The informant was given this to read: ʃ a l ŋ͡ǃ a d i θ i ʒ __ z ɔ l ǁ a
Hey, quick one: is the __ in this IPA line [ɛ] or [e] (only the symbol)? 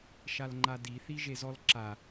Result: e